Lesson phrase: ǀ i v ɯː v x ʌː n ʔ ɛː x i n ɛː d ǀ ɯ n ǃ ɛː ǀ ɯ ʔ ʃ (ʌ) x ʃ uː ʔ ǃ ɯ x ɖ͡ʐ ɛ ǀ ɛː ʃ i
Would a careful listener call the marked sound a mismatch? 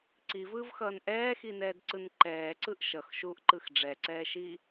no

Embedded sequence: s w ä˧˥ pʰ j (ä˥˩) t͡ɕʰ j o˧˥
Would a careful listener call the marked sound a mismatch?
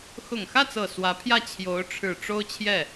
no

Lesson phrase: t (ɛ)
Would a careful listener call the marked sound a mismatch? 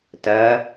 yes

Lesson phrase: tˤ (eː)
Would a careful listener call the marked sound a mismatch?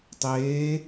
no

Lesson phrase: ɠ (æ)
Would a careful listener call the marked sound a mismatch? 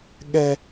yes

